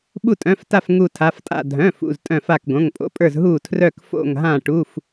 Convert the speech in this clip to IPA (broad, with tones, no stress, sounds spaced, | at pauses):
ɓ u˧˩ tʼ œ̃˩˧˩ f t a˧˩ f ŋ u˧˩ tʰ a˩˧˩ f tʼ a̰˧˩ dʱ œ̃˩˧˩ f ṵ˩˧˩ z tʼ œ̃˧˩ f a˧˩ k ɡ õ˩˧˩ ŋ pʼ o̰˩˧˩ pʼ ə˞˧˩ z ɦ uː˧˩ tʰ r œ˧˩ k f o̰˧˩ ŋ ɦ ã˧˩ ʈ u˩˧˩ f